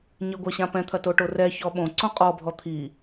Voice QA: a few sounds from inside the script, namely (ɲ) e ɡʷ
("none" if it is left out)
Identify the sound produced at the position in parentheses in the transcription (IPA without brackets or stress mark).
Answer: ɲ